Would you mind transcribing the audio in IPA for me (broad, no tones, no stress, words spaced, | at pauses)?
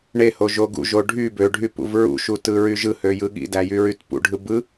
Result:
ɳeho ʒoɡṵʒo ɖʱy bøɖʱy pṵvɹṵʃu tɯɹyʒɯhø jɯɠḭdæ jyɹytpṵɖʱɯ bɯ